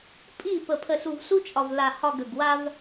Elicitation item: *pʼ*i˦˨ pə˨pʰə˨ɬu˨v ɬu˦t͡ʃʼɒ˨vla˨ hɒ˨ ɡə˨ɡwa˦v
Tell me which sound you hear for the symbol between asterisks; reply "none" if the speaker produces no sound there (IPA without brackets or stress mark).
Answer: pʼ